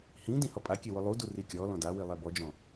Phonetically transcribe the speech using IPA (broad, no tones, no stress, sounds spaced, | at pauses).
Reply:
h ĩ d ĩ h ɔ pʼ a kʲ e w ʊ lˠ u d u r i kʲ ɔ l ɔ̃ d a w i lˠ ɛ b ɔ d͡ʒ ɔ̃